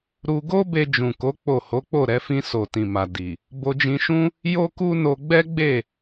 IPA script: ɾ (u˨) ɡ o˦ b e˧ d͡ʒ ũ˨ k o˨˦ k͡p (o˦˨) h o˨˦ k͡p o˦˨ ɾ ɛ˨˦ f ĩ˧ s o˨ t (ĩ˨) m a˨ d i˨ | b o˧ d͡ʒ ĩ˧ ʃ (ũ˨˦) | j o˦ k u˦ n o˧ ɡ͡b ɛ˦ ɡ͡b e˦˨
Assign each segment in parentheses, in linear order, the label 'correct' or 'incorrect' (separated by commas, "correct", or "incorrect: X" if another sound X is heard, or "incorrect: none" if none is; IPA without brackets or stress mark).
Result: incorrect: u˧, correct, correct, incorrect: ũ˦